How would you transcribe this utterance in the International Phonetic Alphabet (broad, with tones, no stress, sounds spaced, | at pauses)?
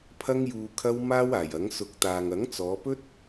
pʰ ɐ˧ ŋ j uː˨ kʰ ɐ˧ w m aː˥ w aː˨˩ j ɐ˨˥ ŋ s ʊ˨˥ k̚ t̪ aː˨ ŋ ɐ˨˥ ŋ t͡s ɔː˨˧ p ɵ˥ t̚